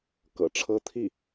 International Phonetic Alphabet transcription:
kɤ̰˨˩ʈ͡ʂʰɤ˥ t̪ʰi˥˩

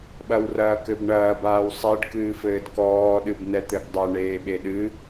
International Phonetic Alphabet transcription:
ɓɐwrɐːkɘbɳɐːb aːwsˤeɖ kɨːfɘːdkɔː ɗɨbnɛt̪ɘɡdˤɐ ɳeːɓeɗɨ

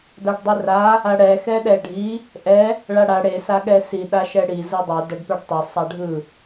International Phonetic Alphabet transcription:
daɖdˤera | aɽɛ xɛɗɛɖʱi | ʔɛ | ɭaɽa ɽe saɠɛsi ɗaʃɛɽi zɯdˤɛ dʌɖpɛɖtˤɛ sˤaɖʱɯ

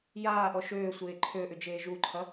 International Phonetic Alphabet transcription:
jaːʔɔ ʃøːsʷeː ǃʰøʔʏd͡ʒeː ʒuǃʰɐ

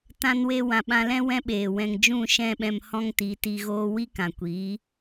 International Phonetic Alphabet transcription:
tã˧nwe˧ wã˨ɓã˧lɛ̃˦ wɛ̃˦ɓeː˨wɛ̃˧ŋ d͡ʒũ˦˨ʃɛ̃˦˨ɓɛ̃˧m hɔ̃˦ŋti˨˦ti˧ɣoː˦ wi˦kã˨kʷiː˨˦

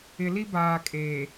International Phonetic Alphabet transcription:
ɪ˨li˦baː˨kʼeː˨

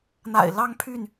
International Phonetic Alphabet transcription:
n̪a̰˨˩ɪ̯lɑ˦ŋpʰy˥˨n

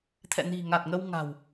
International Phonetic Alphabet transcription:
t̪ʰɛ̰˧˨ni̤˨˩ ŋa˨˩t̚ŋə˧w ŋa̤˨˩w

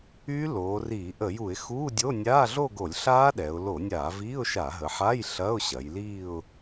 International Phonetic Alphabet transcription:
y˦˥ loː˩˧riː˧˩˧ ʔə˧˩˧ju˧˩˧ɪ̯xuː˧˥˧dʲo˧˥˧ nʲaː˧˥˧ɮo˥˧ɡo˧˩˧lʲɬaː˦˥ ɗɛ˩˧ʊ̯ lo˧˩˧nʲaː˧˩˧viː˧˥˧ʊ̯ʃa˧˩˧ ɦə˩˧ħa˧˥˧j ɬɐ˧˥˧ʊ̯ɕɐ˩˧j liː˥˧ʊ̯

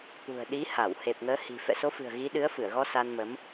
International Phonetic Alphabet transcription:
t̪ṳ˨˩ə̯ɗi˨˦ ha˧˩w he˨˩p̚ŋəː˨˦hi̤˨˩ fɛ̰˧˨so˨˦fɨ̤˨˩ə̯ ɣi˨˦ ɗɨ˨˦ə̯fɨ˧˩ə̯ɣɔ˧ sa˧nmə˨˦m

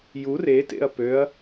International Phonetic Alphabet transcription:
jur etḛɐ̯ pøɐ̯

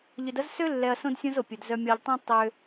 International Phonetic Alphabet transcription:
ʎʏ˨dɐ˦z sø˦lːɛ˨ɐ̯ sõ˦dsʲõ˦zo˨pʲʊ˨d zœ˨mʲɔ˨ʎtˤœ̃˦ tˤø˦

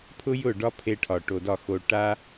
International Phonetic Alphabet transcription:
pʰʊ˦jʊ˦˨ ɖɒ˦pʰe˧ʈʰɒ˨ ʈo˨dɒ˦˨xo˧ ʈa˦

